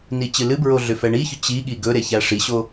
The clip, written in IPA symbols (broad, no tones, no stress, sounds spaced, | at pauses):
n i t͡ɕ ɨ l ɨ b ɹ o ɮ ʏ f ɛ ɳ i ç ʏ t͡ɕ i ɠ i ɡ ɵ ɾ e ç æ ʂ i ɕ o